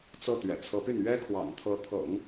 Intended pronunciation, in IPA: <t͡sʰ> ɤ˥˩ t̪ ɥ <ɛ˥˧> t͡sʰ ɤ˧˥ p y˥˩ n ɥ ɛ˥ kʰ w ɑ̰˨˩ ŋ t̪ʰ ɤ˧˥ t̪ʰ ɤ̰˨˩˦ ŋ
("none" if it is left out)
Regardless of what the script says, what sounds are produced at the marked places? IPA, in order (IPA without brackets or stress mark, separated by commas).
t͡s, ɛ̰˨˩